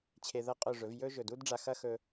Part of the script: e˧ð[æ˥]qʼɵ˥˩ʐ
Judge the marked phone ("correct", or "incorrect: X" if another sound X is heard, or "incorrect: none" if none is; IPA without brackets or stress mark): incorrect: ɐ˥